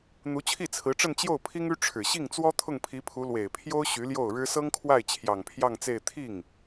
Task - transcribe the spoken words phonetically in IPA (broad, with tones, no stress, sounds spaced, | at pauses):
n̪ u˧˥ t͡ɕʰ i˥˩ t͡sʰ ɹ̩˧˥ ʈ͡ʂ ə˥˧ n t͡ɕ j o˥˩ ʊ̯ pʰ i˥ ŋ y˥ ʈ͡ʂʰ ɻ̩˨˩ ɕ i˥˩ ŋ t͡s w ɔ˥ t̪ʰ ʊ˥˩ ŋ pʰ i˧˥ pʰ u˧˥ l w e˨˩ ɪ̯ pʰ j o˥ ʊ̯ ɕ y˧˥ l j o˥˩ ʊ̯ ɻ ɻ̩˥ s ɤ˥ ŋ kʰ w a˥˩ ɪ̯ t͡ɕʰ j ɑ˨˩ ŋ pʰ j ɑ˥˧ ŋ t͡s e˥˧ ɪ̯ t̪ʰ i˥˩ ŋ